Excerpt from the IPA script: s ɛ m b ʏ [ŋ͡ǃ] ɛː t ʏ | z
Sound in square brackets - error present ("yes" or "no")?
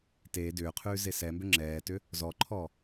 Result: yes